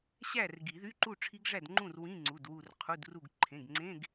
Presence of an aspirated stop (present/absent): present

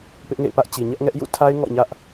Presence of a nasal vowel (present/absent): absent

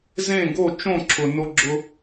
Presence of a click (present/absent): present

